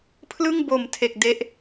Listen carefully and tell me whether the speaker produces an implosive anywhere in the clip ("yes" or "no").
no